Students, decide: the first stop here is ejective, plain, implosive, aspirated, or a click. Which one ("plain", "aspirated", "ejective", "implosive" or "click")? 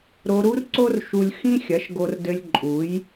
click